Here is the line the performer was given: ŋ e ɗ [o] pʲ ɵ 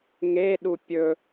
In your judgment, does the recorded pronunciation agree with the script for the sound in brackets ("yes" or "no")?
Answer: no